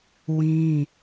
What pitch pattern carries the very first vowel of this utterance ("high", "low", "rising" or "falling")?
high